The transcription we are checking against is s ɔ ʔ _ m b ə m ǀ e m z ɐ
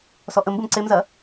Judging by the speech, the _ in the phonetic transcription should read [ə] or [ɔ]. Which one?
ə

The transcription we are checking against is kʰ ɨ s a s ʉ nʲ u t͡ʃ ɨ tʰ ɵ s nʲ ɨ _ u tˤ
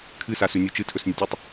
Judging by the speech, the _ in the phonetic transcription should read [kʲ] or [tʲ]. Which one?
tʲ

